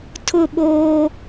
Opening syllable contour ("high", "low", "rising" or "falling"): falling